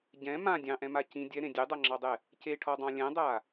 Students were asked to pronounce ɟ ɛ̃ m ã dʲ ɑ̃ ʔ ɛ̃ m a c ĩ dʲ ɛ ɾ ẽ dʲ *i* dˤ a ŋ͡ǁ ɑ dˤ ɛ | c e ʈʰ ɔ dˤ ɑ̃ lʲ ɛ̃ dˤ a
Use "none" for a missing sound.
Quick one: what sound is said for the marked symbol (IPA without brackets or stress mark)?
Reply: e